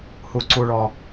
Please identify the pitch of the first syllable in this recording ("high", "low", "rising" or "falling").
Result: low